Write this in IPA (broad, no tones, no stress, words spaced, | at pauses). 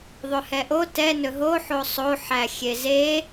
ðˤɵhɛʔo tɛ nɵɦo ħosˤo ħæxʲeze